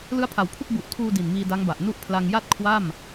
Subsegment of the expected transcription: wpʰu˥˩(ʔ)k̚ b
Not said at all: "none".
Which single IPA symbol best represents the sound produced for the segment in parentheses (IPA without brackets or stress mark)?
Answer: none